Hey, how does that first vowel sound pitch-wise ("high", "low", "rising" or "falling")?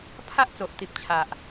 high